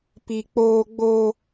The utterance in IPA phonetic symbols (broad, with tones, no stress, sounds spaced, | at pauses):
p i˦ k͡p oː˦ ɡ͡b o˦